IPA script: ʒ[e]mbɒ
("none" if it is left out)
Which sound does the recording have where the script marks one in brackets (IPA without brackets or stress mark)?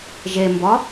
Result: e